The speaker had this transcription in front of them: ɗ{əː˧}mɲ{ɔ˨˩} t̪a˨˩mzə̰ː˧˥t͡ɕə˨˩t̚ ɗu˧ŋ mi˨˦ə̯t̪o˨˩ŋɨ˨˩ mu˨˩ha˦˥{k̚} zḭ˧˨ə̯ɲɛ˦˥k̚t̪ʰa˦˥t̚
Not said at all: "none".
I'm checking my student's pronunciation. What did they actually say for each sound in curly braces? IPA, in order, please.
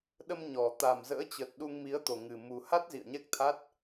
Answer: ə˧, ɔ˨˩, t̚

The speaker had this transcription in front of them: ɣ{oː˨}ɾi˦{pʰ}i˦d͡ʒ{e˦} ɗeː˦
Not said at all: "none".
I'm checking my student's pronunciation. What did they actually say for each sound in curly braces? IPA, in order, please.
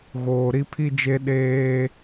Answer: oː˨, pʰ, e˦

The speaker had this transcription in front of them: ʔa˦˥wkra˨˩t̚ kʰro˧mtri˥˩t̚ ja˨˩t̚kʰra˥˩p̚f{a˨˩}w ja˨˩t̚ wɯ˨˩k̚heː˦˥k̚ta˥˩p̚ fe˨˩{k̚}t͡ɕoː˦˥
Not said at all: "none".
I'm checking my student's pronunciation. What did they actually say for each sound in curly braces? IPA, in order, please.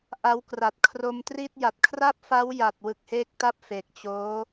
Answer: a˦˥, k̚

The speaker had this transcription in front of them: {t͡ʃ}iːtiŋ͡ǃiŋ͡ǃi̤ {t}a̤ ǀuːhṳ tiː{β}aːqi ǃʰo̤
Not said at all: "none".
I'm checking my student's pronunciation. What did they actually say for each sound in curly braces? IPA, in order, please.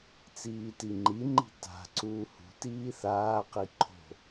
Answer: t͡s, t, θ

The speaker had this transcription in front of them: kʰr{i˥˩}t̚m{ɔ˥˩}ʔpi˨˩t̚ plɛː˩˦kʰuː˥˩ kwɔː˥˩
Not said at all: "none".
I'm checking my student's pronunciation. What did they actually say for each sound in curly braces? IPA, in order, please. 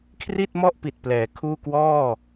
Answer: i˥˩, ɔ˥˩

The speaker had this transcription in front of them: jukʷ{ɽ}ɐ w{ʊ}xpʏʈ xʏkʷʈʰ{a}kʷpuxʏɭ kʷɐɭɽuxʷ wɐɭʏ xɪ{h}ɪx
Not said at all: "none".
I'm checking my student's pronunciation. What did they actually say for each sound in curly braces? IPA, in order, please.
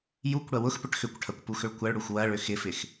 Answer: ɽ, ʊ, ɐ, f

